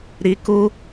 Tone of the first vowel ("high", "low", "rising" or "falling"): high